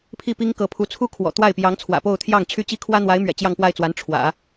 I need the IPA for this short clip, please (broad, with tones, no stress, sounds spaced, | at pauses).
pʰ i˥˩ p i˥ ŋ k ɤ˧˥ pʰ u˧˥ t͡sʰ u˥ kʰ w ɔ̰˨˩ t̪ w a˥˩ ɪ̯ p j ɑ˧˥ ŋ t͡sʰ w ä̰˨˩ p o˥˧ ʊ̯ t̪ʰ j ɑ˥˩ ŋ t͡ɕʰ y˥ t͡ɕ i˥ kʰ w ä˥ n̪ w a˧˥ ɪ̯ m ɥ ɛ̰˨˩ t͡ɕ j ɑ˥˧ ŋ p w a˥˩ ɪ̯ t͡s w a˧˥ n ʈ͡ʂʰ w ä̰˨˩˦